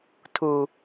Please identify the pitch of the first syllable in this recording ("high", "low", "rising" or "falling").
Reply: low